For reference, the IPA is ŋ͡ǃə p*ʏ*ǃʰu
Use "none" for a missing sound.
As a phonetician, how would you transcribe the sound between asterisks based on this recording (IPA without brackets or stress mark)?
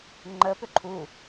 ʏ